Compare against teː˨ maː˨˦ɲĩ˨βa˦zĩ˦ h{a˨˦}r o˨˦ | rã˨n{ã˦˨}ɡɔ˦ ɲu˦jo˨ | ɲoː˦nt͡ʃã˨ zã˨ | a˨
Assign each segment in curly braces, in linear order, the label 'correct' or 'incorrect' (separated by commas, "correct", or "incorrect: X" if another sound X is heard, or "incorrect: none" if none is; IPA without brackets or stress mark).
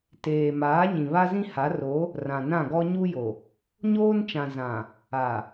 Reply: correct, correct